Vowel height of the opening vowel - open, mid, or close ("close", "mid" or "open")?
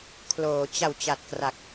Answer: mid